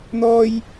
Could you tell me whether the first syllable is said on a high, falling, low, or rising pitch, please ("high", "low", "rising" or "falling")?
high